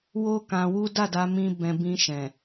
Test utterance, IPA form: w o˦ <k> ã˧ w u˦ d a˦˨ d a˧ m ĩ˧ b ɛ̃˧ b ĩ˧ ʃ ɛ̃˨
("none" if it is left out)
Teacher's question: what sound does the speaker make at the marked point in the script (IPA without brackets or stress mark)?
k